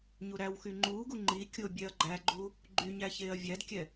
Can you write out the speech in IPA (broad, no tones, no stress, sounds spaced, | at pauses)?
ɲ u ɾ æ w x y ŋ͡ǃ uː ɡ u ŋ͡ǃ i kʲ o bʲ ɛ ɐ̯ ɡ͡ǃ æ ɡ͡ǃ u | ɡ͡ǃ y ɲ æ ç eː ɐ̯ vʲ æ d kʲ ɛ